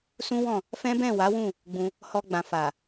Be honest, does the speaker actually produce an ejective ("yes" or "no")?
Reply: no